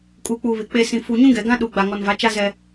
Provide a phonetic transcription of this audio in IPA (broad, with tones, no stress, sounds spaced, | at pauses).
kʼ uː˨ k͡p uː˨ β ɪ˨ k͡p e˨ s ĩ˨ f u˨ ɲ ũ˦ ɡ ɛ˨ ɡ ã˦ ɗ uː˨ ɡ͡b a˨ ŋ ɔ˨ n v a˨˦ t͡ʃ a˦ z ɛ˦